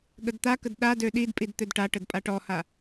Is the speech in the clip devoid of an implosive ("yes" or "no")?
no